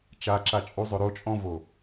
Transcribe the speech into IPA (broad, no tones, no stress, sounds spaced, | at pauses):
t͡ʃ a ǁ a t͡ʃʼ u zˤ ɵ ɾ o t͡ʃʼ ɔ̃ v o